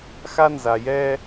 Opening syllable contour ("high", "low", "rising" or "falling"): high